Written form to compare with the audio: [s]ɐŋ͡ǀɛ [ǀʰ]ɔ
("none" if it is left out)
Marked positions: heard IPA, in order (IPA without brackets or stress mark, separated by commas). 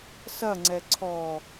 s, ǀʰ